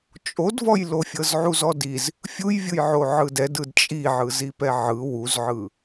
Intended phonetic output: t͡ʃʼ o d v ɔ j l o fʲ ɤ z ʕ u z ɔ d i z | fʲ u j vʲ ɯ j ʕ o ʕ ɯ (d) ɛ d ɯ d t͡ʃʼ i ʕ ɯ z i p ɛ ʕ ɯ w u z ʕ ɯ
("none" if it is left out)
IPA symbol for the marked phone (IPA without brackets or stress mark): d